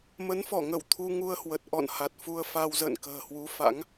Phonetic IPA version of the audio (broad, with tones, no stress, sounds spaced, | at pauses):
m ə˨˦ n f ɔ˧˩ ŋ ə˧˩ w t̪ʰ u˧ ŋ u˧ ə̯ h w ə˨˩ t̚ ʔ ɔ̰˧˨ n h a˨˩ t̚ f u˧ ə̯ f a˧ w z ə̰ː˧˨ n k ə̤ː˨˩ h w u˨˦ f a̰˧˥ ŋ